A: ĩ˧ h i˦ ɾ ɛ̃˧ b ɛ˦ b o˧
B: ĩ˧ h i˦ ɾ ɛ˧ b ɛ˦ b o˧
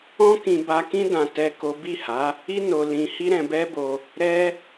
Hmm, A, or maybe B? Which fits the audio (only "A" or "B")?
A